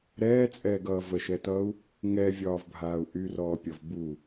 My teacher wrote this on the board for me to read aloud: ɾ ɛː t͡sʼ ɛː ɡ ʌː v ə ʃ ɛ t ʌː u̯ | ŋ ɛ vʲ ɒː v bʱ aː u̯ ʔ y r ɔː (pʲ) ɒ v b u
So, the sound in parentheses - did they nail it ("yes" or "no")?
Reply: yes